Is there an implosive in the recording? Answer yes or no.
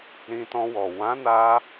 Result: no